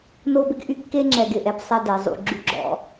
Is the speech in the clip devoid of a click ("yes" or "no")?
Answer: no